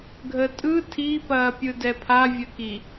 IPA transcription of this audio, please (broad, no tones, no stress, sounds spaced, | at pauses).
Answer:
ɡʱ ə tʼ ɯ tʰ i p ɐː pʲ ɯ d ɛ pʰ a vʲ ə k i